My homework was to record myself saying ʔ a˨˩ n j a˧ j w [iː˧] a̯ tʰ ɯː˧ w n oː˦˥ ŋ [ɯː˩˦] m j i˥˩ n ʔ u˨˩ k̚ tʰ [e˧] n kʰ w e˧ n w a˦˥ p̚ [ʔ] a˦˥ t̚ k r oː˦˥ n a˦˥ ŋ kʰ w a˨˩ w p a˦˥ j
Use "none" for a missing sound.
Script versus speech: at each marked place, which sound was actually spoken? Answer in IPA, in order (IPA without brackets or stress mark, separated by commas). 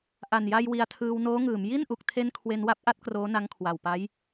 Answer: i˧, ɯː˩˦, e˦˥, ʔ